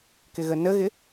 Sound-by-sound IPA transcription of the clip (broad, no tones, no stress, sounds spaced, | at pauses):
k ɪ ɣ ə n ə ɣ ɪ